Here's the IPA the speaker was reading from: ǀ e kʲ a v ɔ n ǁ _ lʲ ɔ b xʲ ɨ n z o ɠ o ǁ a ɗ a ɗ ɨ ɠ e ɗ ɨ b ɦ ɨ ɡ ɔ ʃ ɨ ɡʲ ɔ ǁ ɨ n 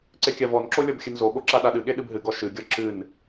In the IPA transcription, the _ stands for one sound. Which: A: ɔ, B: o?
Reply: B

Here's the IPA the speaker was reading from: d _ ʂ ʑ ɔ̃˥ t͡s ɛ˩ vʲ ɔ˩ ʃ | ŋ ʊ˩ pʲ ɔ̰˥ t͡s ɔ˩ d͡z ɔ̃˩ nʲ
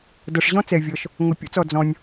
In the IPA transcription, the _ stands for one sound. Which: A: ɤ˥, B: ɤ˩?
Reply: B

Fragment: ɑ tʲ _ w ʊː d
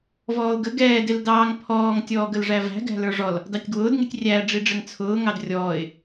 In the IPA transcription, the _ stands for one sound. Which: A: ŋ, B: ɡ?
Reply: B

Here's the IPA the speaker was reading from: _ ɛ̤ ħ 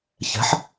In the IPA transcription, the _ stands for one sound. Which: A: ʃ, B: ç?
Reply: B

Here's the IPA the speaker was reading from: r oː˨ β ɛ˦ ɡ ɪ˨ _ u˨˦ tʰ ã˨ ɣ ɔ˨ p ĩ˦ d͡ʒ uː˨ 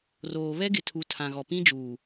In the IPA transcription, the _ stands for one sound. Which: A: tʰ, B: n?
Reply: A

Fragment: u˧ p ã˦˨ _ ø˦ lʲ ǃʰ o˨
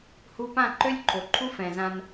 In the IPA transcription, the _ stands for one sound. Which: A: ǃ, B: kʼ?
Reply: A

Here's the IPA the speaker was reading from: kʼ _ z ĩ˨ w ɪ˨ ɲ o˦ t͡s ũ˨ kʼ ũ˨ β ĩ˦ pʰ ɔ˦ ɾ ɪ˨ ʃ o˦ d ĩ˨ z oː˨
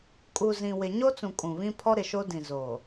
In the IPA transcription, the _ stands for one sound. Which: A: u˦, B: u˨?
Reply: B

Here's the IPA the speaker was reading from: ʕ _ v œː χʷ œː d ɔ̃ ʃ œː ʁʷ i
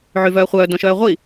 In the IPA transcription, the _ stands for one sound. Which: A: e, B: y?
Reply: B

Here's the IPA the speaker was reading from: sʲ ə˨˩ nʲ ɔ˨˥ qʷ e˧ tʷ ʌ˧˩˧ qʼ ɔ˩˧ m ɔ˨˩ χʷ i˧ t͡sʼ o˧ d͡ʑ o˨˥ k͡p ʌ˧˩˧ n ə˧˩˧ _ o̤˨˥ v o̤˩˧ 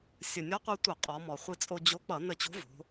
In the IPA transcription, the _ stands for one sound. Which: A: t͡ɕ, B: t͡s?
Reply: A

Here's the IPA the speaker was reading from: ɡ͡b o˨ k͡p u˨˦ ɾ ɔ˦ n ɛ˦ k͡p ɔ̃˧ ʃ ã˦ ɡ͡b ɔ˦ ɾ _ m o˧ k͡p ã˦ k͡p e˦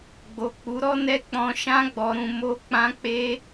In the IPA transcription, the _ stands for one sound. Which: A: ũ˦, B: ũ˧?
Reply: A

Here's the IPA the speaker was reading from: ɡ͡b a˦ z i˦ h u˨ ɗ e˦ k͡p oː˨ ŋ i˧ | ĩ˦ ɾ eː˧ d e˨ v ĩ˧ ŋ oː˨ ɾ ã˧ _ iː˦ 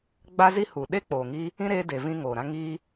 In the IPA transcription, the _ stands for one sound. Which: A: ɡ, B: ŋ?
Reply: B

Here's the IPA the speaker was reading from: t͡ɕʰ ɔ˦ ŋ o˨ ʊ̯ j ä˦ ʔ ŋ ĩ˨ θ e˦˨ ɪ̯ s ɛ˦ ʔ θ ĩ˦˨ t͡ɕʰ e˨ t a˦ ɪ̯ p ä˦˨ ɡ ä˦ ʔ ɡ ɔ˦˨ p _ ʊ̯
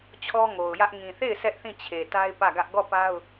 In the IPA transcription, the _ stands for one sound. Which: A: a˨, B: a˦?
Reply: B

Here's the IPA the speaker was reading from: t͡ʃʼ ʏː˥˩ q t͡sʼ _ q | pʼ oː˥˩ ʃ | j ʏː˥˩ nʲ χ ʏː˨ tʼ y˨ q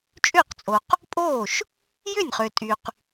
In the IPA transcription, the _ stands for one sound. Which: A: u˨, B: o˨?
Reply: B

